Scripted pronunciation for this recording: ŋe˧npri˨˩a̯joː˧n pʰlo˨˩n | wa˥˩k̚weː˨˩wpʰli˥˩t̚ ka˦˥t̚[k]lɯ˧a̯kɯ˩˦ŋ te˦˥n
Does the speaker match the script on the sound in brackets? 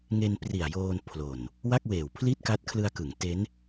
no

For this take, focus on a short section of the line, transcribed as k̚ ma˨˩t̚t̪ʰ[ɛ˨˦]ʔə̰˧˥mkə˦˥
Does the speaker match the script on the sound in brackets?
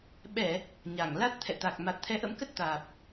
yes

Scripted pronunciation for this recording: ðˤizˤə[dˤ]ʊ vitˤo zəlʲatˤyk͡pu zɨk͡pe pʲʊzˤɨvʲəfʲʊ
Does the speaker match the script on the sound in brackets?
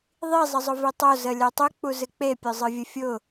no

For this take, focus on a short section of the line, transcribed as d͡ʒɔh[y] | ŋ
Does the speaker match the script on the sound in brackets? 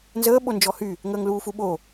yes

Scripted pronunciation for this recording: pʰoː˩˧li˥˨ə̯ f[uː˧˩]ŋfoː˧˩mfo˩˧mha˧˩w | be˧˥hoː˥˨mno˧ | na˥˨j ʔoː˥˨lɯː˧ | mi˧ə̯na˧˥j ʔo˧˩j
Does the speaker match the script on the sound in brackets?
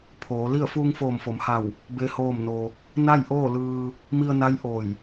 no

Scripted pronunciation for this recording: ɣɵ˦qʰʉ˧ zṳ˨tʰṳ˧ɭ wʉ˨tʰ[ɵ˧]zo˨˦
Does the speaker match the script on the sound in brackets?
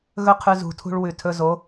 yes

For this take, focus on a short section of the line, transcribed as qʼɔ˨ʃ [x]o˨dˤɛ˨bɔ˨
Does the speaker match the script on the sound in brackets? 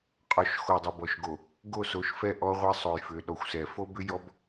yes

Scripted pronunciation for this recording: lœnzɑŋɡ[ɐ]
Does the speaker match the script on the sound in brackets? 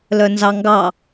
no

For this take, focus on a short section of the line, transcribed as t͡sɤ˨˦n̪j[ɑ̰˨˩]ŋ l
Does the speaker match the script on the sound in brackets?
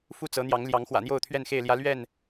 no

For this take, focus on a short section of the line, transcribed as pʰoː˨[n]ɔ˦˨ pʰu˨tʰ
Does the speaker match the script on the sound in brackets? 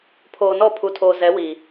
yes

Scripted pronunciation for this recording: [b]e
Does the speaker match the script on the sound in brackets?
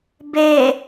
yes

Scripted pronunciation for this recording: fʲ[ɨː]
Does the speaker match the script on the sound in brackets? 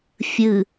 no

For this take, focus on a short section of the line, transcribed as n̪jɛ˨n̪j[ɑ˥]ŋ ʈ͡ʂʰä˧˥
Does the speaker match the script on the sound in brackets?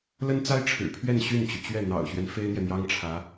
yes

